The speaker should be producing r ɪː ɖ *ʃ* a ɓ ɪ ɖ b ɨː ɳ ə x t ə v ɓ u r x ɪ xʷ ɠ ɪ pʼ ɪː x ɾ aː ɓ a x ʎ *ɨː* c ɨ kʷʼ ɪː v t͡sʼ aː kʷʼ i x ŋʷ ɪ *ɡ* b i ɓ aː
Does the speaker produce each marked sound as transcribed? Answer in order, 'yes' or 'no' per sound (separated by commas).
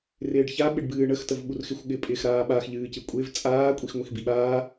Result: no, yes, no